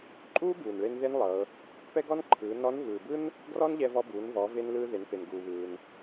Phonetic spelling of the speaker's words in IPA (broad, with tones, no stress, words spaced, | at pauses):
ǃʼuː˥buː˩nɭe˧n ðe˥nlˠɤ˩˧ | pɛ˥ɡɔ˥nǃʰɯː˩˧ nɔ˧˥n vɯː˩bɯ˥n | ɡrɔ˥nʎɛ˧vɔ˧buː˩˧n vɔ˩˧ve˧n lɯː˧ ðe˩˧npe˩nɡuː˩βɯː˩n